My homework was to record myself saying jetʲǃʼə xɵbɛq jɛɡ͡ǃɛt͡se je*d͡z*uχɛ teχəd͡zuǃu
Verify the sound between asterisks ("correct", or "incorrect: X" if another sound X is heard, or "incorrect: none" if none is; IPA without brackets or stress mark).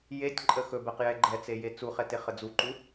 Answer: incorrect: t͡s